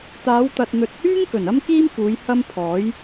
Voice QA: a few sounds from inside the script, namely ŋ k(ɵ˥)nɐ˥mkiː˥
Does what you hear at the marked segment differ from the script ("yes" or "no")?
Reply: yes